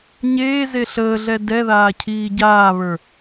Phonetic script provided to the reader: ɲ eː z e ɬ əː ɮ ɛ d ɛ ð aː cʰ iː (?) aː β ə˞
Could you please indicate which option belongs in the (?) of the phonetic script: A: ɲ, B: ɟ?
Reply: B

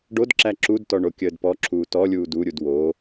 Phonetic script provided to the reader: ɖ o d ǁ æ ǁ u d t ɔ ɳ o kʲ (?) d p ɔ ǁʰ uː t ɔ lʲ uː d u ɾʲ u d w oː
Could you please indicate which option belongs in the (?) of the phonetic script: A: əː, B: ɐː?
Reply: A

